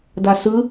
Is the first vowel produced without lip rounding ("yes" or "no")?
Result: yes